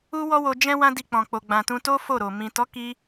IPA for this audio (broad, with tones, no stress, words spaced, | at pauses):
u˦wɔ˦ wo˧d͡ʒɛ̃˦ wã˦di˧k͡pɔ̃˨k͡po˨ ɡ͡bã˨tũ˧to˦ fo˦˨ɾo˨ mĩ˨tɔ˨˦ki˧